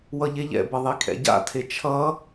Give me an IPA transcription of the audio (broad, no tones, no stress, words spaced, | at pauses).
wʌʎeʎɛ̰bʌ ðˤikʰɛ̰ɟa̰tʰe t͡ʃʰʌ